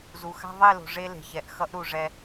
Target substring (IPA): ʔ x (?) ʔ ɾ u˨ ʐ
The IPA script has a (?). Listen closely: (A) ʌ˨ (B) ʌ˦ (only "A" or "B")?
B